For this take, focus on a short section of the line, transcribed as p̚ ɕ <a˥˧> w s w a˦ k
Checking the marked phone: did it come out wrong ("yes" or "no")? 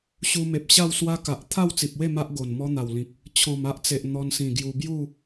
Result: no